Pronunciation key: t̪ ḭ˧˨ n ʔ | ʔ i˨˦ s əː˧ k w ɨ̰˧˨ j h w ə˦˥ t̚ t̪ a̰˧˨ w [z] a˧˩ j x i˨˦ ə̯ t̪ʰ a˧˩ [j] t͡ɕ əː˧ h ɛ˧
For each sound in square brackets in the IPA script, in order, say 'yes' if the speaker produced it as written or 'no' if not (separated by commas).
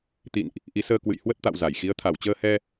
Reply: yes, no